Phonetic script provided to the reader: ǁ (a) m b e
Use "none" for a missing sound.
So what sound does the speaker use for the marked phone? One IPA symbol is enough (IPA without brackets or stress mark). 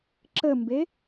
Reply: ə